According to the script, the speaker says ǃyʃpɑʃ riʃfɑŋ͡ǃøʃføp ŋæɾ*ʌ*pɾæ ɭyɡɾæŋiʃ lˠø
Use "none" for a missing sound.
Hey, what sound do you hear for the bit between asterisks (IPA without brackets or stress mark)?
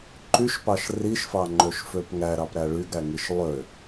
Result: ɑ